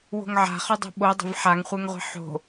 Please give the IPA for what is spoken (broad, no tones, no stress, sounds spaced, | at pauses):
w o̤ ŋ ʕ a̤ χ ø dˤ o̤ ɓ o dˤ ə̤ v ħ a ŋ χʷ e ŋ ʁʷ i̤ ħ o̤